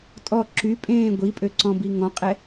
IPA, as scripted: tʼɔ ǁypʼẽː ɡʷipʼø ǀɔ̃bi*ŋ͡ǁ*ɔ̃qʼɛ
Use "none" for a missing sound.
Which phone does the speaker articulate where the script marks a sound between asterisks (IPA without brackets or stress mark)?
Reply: ŋ